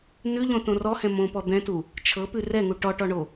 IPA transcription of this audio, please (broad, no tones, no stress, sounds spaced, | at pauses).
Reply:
n ʉ ʎ õ t õ r ɔ h ɛ̃ m õ p ɔ d̪ ɛ̃ t u | t͡ʃʰ ɤ p ʉ r ɛ ŋ u ʈ ɔ ʈ ɔ ɳ o